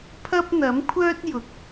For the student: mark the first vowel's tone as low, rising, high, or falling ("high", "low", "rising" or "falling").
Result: high